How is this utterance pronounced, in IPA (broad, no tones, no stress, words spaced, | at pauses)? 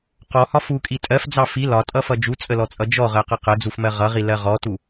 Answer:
qɔhɒ fukʼi tʼɜfd͡zɑ fi lɒtʼʌfʌ d͡ʒut͡sʼəlɔt͡sʼʌ d͡ʒɔʁɜqʌ qəd͡zufmɜ ʁʌʁilɜ ʁɔtu